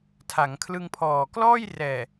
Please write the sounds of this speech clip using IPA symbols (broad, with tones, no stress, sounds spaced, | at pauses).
tʰ a˩˦ ŋ kʰ l ɯ˧ ŋ pʰ ɔː˨˩ k l ɔː˥˩ j r ɛː˨˩